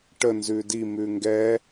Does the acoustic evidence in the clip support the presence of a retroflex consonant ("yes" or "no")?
yes